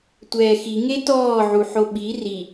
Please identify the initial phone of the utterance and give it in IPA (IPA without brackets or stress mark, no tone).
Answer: tʷ